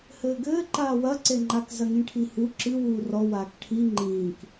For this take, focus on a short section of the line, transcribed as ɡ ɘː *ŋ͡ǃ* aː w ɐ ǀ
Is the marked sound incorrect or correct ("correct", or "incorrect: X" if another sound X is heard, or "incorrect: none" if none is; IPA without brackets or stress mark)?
incorrect: ǃ